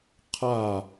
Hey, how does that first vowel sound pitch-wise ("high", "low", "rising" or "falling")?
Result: falling